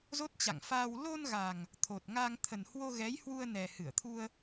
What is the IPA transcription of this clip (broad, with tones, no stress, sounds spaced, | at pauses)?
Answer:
z o˦˥ t̚ t͡ɕ a̰˧˨ ŋ f aː˧ w l o˧ n ɣ a˨˩ ŋ | t̪ʰ o˨˩ t̚ ŋ a˧ ŋ t̪ʰ ə˨˩ n h w o˧ ɣ ɛ˨˦ j h w u˧ ə̯ n ɛ˨˩ h ɨ˧˩ ə̯ t̪ʰ u˧ ə̯